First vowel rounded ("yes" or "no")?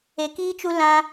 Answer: no